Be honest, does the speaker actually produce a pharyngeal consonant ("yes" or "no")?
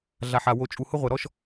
yes